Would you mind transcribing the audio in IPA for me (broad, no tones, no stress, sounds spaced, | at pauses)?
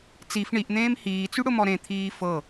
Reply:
t͡s i f ɳ i ʔ n̪ ẽː m h iː t͡s y ɽ ʊ m ɔ ɾ ẽ t̪ʰ iː f ɤ